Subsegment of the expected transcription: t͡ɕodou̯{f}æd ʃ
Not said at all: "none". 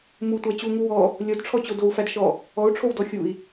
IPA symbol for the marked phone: f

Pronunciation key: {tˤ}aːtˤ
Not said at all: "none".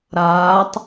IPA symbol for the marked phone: ɾ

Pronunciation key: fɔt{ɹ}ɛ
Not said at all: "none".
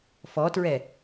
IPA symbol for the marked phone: ɹ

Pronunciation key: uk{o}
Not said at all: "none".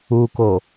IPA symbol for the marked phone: o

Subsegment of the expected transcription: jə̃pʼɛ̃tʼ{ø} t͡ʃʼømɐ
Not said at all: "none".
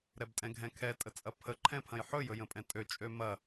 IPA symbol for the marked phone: ø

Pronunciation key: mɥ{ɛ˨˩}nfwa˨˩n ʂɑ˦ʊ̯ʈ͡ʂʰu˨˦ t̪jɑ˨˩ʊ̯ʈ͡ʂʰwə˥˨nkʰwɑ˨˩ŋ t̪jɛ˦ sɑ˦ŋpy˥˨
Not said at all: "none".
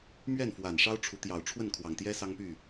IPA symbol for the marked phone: ɛ˥˨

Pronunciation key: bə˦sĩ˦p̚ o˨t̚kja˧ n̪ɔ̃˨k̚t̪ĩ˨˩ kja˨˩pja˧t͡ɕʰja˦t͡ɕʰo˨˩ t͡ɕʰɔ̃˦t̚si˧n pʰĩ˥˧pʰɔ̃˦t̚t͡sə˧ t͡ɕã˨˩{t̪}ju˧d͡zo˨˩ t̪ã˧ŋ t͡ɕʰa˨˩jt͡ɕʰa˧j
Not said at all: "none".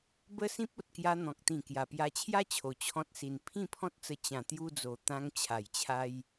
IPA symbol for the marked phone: t̪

